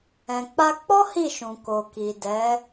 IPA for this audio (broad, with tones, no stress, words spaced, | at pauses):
ɛ̃˨k͡pa˧k͡pɔ˦ hi˦˨ʃũ˨ ko˨ki˨ dɛ˨˦